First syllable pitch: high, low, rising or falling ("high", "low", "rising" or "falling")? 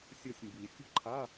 falling